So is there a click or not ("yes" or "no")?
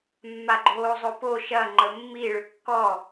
yes